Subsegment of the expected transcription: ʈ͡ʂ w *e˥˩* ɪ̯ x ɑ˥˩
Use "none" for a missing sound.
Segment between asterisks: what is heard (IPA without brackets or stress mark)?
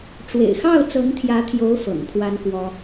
ḛ˨˩